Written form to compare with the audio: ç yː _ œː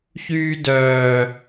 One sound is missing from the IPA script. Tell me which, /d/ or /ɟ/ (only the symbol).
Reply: d